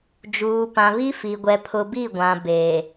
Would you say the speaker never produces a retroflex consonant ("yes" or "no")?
yes